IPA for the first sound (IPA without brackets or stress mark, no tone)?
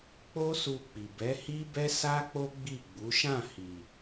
k͡p